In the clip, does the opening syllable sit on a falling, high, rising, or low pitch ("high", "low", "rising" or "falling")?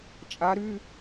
rising